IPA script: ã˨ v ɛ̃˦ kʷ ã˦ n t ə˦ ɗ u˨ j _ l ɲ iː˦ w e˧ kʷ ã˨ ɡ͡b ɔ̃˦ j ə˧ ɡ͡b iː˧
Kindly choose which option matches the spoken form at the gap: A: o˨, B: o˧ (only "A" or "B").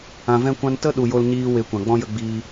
B